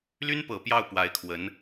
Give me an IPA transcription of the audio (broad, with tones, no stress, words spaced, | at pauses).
ly˥npɤ˨˩ pjɑ˥˩ʊ̯pwa˧˥ɪ̯kʰwə˧˥n